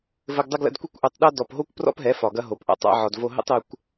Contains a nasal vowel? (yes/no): no